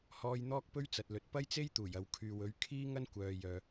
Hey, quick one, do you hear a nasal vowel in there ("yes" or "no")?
no